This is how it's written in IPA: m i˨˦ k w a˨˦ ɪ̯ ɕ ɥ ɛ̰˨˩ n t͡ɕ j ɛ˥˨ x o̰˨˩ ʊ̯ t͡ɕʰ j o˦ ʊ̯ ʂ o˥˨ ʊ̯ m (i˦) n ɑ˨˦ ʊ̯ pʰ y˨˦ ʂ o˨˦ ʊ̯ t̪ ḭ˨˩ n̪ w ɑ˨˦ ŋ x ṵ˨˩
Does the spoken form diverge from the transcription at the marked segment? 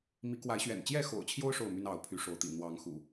yes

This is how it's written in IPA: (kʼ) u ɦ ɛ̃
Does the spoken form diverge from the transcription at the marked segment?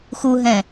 yes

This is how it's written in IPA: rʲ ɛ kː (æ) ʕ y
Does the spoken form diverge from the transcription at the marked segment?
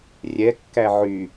no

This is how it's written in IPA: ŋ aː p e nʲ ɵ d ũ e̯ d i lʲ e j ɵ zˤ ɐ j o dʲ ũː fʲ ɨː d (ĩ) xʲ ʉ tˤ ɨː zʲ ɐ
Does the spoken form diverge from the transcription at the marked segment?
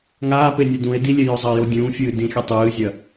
no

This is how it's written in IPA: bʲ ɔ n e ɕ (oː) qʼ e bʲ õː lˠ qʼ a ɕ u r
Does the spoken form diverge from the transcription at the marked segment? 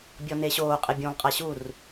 no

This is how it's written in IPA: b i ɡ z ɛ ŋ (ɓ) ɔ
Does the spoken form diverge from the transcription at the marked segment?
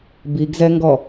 yes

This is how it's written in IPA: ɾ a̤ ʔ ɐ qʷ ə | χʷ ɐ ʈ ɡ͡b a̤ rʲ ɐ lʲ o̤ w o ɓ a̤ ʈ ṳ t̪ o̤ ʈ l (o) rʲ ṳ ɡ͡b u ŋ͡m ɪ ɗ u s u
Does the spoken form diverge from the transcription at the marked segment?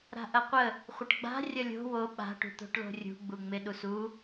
yes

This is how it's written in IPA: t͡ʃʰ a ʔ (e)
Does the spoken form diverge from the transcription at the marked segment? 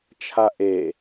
no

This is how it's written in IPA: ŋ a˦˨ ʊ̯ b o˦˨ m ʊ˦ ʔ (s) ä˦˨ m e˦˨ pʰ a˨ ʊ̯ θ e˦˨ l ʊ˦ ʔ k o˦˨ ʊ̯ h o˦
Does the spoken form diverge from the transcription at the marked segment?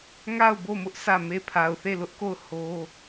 no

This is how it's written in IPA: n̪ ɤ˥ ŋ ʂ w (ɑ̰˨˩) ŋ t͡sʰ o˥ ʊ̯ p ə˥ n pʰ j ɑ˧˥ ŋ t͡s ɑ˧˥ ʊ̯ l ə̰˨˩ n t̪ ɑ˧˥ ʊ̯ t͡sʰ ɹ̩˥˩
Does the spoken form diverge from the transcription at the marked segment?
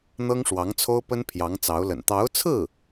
yes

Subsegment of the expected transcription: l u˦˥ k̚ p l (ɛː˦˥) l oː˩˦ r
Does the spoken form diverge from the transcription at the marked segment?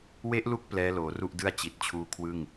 no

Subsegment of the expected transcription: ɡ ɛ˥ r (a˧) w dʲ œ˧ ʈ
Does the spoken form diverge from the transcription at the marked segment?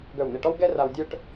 no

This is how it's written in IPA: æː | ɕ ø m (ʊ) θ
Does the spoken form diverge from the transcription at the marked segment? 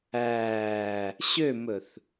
yes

